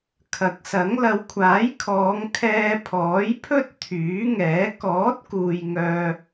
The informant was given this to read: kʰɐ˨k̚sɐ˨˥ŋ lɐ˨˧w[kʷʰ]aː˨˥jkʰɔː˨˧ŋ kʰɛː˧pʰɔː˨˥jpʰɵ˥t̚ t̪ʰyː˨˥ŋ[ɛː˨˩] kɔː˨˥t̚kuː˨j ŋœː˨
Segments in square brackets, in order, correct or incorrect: correct, incorrect: ɛː˨˥

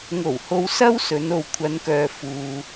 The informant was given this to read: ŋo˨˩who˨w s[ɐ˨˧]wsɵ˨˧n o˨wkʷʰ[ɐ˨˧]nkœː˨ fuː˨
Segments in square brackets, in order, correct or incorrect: incorrect: ɐ˥, correct

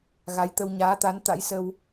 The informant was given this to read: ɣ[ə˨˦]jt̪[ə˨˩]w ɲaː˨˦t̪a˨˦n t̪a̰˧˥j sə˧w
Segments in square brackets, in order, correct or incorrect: incorrect: a˨˦, incorrect: ə˧

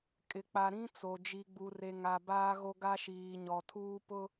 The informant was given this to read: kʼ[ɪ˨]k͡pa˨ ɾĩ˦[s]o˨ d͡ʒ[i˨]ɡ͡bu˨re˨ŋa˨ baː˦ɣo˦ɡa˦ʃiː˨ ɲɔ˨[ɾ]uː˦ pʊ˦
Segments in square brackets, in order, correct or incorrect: correct, incorrect: t͡s, correct, incorrect: tʰ

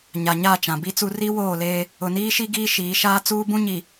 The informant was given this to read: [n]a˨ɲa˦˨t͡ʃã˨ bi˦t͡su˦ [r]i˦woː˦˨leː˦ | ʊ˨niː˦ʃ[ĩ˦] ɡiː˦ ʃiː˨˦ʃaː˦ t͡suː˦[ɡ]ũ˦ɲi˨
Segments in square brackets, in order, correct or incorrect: incorrect: ɲ, correct, incorrect: i˦, incorrect: b

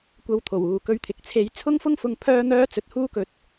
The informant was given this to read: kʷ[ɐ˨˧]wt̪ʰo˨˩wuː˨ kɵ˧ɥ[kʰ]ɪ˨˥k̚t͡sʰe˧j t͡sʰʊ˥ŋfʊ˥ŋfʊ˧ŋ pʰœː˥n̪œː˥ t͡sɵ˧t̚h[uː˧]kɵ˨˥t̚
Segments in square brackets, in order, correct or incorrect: incorrect: ɐ˧, incorrect: t̪ʰ, incorrect: uː˥

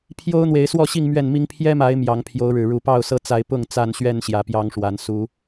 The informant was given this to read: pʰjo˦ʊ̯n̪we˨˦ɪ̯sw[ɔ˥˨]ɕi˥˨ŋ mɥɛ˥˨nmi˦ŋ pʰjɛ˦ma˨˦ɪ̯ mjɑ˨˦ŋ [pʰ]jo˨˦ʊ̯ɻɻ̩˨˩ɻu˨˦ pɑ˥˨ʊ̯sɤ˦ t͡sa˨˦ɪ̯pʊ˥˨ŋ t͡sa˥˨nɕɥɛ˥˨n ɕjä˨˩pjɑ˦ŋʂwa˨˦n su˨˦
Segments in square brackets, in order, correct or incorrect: correct, correct

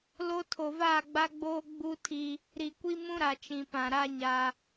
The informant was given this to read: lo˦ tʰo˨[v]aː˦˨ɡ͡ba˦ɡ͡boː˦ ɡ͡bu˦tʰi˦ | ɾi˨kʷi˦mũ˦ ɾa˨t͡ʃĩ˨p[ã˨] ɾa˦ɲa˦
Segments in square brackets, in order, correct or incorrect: correct, correct

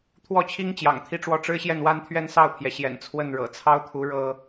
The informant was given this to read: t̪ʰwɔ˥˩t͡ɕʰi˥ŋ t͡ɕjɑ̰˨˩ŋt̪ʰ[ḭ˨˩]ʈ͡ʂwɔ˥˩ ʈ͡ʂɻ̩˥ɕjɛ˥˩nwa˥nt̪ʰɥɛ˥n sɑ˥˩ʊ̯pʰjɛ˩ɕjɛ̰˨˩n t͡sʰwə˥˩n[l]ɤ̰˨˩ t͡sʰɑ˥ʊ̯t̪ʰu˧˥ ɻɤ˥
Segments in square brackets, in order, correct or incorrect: incorrect: i˥˧, incorrect: ɻ

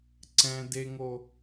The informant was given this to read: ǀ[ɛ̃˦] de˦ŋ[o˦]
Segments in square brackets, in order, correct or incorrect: correct, correct

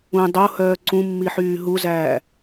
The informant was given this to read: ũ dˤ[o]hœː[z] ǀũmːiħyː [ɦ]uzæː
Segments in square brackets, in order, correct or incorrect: correct, incorrect: none, correct

